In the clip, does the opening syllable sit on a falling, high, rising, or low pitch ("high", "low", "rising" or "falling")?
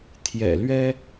low